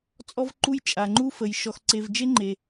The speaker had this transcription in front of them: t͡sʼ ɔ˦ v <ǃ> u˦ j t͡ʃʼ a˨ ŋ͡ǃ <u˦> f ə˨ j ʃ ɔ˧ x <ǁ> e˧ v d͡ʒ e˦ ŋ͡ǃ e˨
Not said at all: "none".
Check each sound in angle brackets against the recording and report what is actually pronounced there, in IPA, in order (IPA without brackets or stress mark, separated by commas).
ǃ, u˦, ǀ